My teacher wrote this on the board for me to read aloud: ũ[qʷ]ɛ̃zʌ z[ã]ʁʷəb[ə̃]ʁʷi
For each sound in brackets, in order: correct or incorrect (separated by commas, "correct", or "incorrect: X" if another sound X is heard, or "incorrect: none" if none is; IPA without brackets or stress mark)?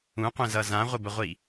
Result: correct, correct, incorrect: ə